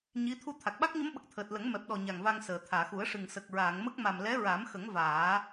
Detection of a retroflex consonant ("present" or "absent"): present